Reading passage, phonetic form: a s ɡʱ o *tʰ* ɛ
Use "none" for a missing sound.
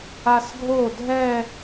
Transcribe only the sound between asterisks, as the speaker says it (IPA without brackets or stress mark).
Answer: dʱ